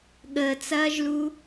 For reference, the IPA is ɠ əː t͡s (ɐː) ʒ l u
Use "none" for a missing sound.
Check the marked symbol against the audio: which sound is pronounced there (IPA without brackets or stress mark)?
ɐː